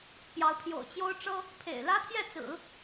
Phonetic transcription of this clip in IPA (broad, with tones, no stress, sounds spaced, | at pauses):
p j ɑ˧˥ ʊ̯ pʰ j o̰˨˩ ʊ̯ t͡ɕ j o˥ ʊ̯ ʈ͡ʂ ɤ˥ | pʰ ḛ˨˩ ɪ̯ l ä˥ t̪ʰ j ɛ˥˩ t͡s ɹ̩˨˩˦